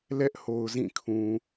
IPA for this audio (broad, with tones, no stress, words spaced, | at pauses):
lɛ˦ʔho˨ʊ̯ zĩ˦˨kʰũ˨